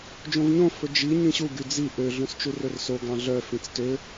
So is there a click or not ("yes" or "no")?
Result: no